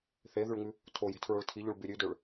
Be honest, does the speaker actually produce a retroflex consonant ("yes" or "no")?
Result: yes